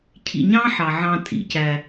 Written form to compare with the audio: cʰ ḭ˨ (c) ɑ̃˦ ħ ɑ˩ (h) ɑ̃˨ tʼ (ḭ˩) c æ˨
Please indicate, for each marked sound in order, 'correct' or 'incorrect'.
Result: incorrect: ɲ, incorrect: ʕ, correct

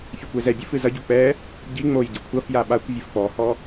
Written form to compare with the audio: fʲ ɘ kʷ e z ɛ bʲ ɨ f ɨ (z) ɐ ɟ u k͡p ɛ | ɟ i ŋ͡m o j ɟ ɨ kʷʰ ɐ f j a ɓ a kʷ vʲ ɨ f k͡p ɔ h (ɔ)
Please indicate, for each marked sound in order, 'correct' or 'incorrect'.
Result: correct, correct

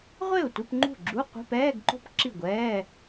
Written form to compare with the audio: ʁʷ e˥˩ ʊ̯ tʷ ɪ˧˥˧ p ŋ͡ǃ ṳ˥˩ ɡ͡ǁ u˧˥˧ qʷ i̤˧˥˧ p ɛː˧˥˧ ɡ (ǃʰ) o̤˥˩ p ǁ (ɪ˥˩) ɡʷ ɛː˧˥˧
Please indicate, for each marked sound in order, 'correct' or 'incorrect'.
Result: incorrect: ǃ, incorrect: i˥˩

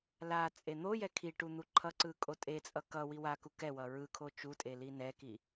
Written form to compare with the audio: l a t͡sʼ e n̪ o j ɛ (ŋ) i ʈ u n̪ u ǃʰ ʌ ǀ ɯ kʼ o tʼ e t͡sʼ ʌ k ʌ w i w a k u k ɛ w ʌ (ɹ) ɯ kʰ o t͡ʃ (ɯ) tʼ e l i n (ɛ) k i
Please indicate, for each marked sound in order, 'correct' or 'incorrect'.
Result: incorrect: kʰ, correct, incorrect: u, correct

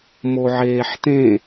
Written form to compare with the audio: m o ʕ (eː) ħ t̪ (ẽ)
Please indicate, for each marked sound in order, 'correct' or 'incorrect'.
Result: correct, correct

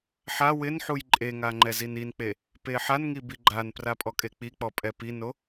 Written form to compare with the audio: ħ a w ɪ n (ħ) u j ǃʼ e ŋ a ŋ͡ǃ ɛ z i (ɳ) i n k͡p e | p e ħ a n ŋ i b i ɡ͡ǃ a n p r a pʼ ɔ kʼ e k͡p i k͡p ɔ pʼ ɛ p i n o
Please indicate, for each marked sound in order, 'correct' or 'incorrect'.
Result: correct, incorrect: n

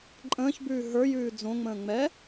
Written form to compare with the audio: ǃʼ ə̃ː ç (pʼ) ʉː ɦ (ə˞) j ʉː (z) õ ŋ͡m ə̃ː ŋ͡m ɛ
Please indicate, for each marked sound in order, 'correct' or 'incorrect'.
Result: incorrect: b, correct, incorrect: d͡z

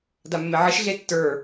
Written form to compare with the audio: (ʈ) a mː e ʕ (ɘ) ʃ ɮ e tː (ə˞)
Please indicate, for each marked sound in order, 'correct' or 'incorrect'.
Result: incorrect: d, correct, correct

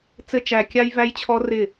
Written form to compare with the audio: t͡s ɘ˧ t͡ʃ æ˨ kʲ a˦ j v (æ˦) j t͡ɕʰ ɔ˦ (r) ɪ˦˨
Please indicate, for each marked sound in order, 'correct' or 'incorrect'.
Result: correct, correct

